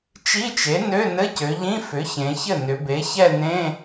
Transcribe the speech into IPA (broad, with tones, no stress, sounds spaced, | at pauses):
t͡ʃ i˧˥˧ t͡ʃ e˩˥ n ø˧˥˧ n ɘ˧˥˧ c ø˩˧ ʎ ĩ˧˥˧ f ʏ˩˥ ç ẽ˩˧ ç ɘ˥˩ n ʏ˩˧ b e˩˥ ç ɛ˥˧ n ẽ˧˥˧